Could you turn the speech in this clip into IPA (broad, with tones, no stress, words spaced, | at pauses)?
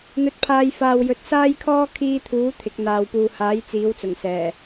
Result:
n̪ɵ˧t̚pʰaː˧j faː˨wjɵ˨t̚ saː˥jkʰɔː˥ kʰiː˧t̪ʰuː˨˥ t̪ʰɪ˨˥k̚ n̪aː˨wpuː˨haː˨˥j t͡siː˨˥wt͡sʊ˨˩ŋ sɛː˨˩